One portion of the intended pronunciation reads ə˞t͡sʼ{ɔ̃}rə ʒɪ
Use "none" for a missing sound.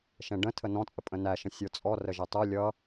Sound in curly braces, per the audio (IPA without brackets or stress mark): ɔ